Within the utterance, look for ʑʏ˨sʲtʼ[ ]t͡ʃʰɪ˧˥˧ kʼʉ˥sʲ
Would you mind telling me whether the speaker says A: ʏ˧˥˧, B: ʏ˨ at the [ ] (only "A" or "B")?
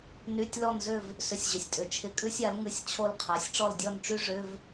B